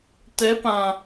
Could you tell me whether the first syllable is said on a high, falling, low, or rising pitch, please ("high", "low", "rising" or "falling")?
rising